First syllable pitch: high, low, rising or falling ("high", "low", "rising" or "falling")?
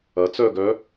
rising